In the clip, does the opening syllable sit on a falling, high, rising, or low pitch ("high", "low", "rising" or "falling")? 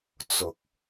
low